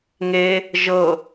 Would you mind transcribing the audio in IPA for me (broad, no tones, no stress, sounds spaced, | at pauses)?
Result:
ŋ e | ʒ ɤ